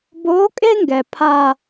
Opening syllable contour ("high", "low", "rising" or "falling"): rising